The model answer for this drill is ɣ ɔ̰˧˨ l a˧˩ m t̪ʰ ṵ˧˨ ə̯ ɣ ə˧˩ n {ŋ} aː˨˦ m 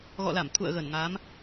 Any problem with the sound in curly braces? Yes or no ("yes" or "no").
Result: no